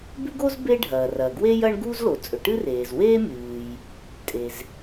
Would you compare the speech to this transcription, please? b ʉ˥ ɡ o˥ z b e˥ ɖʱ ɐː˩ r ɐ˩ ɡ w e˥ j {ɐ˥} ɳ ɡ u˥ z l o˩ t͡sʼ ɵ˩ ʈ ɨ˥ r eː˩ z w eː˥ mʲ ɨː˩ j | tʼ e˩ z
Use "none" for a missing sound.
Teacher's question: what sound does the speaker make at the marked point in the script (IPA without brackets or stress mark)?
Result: ɐ˥